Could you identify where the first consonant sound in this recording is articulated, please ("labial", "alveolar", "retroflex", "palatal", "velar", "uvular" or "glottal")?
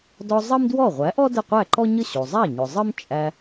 alveolar